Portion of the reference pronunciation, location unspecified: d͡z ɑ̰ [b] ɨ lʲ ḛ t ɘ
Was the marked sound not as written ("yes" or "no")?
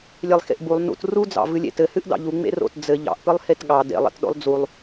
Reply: yes